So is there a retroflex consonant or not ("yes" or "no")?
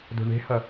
yes